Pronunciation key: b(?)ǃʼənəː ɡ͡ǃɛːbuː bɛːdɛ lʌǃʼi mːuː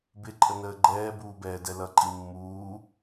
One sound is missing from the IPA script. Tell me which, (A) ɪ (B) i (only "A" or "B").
A